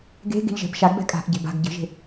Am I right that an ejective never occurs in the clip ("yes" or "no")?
no